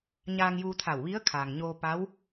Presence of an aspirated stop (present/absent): present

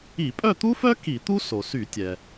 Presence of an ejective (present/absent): present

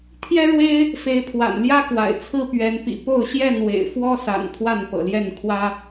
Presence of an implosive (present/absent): absent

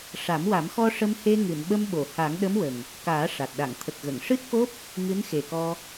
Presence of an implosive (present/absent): present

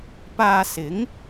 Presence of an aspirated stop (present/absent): absent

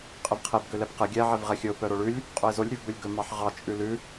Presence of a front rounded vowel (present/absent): present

